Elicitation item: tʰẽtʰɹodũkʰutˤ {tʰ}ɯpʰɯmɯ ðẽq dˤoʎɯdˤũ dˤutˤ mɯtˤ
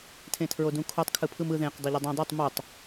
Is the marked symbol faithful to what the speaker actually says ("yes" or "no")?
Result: no